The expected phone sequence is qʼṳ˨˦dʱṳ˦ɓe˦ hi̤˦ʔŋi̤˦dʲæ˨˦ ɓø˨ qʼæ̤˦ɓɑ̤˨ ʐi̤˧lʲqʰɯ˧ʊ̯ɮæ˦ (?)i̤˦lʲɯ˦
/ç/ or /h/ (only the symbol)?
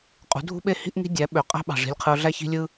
ç